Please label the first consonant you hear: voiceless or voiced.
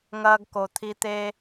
voiced